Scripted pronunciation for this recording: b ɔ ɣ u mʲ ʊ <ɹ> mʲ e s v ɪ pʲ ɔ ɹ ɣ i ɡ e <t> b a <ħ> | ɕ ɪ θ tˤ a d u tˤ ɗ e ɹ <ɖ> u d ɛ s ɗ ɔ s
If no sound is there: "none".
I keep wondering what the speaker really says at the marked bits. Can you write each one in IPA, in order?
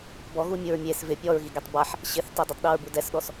ɹ, tˤ, ħ, b

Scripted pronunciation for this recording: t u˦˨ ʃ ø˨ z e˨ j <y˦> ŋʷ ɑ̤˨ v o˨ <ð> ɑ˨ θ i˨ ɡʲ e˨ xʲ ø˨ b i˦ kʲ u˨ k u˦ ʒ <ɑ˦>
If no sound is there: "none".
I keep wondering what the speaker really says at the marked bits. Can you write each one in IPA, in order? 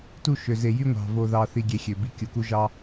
y˦, ð, ɑ˦

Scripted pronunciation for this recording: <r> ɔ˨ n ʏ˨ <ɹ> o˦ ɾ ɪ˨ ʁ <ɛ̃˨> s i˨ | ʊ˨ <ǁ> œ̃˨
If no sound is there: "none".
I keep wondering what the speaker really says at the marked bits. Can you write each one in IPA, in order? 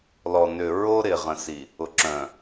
l, ɹ, ə̃˨, ǁ

